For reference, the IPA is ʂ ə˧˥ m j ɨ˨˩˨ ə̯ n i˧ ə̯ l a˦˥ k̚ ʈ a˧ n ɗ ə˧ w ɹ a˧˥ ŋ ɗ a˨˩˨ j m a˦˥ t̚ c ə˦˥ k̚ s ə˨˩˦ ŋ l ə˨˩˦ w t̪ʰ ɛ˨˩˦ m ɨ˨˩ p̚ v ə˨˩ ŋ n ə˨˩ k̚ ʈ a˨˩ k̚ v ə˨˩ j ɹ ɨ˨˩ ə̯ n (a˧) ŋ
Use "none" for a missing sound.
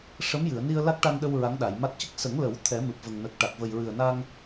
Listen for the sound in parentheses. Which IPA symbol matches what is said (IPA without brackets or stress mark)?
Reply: a˧